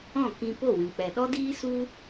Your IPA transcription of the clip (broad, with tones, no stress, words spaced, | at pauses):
ɔ̃˦˨ kĩ˧ po˦˨wĩ˨k͡pɛ˨ ɗɔ˦diː˦su˦